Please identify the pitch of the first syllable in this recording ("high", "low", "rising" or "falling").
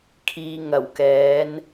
low